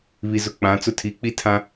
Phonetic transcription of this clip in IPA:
β i˨ z ʊ˨ k͡p ã˨˦ t͡s ʊ˦ tʰ i˨˦ k͡p i˦ tʰ ã˦

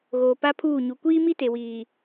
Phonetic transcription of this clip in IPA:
ɣ oː˨ p a˦ pʰ uː˦˨ ɲ u˨ kʷ iː˦ m i˦ t e˨ w iː˨

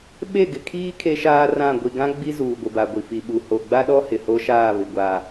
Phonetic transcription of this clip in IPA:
ɓ e˦˨ ɡ ɪ˨ kʰ iː˦ kʰ e˦ ʃ aː˦ r ã˦˨ ɡʷ i˨ ɡ ã˦ ɡ͡b i˦ z uː˨ ɡʷ ɪ˨ b a˨ ɡʷ i˨ f i˨ ɓ u˨ h o˨ ɡ͡b a˦ ɗ ɔ˦ h ɪ˨ h o˦ ʃ aː˦˨ β ɪ˨ ɡʷ a˨

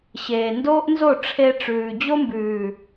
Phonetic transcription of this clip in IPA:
ɕ eː˨ n d oː˦ ʔ n z o˦˨ ʈ͡ʂʰ e˧ ʈ͡ʂ ʉː˨ d͡ʑ o˦ m b ʉː˨

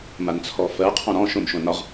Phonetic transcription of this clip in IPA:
m a n t͡sʰ ɔ f ɜ qʰ ɔ̃ ɾ ɔ̃ ʃ õ m ʃ õ n ɒ ʁ

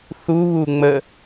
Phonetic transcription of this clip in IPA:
θ u β u ŋ͡m ə

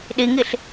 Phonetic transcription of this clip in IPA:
ɗ i ŋ i ɬ

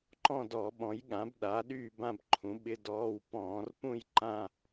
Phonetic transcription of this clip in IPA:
ǃ ɔ̃˥˧ d ɔ˧˩˧ ɓ ɔ̃˩˥ j ɠ ã˩˥ b ɗ a˩˥ ɗ yː˥˧ b ã˥˧ b ǃʰ ũ˩˥ ɓ ɪ˧˥˧ d ɔː˧˥˧ w p ɔ̃ː˧˩˧ r p ũ˥˧ j ǃ ã˥˧

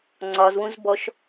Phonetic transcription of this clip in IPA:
ŋ͡ǀ ɒ z w ũ z b ɔ ʃ

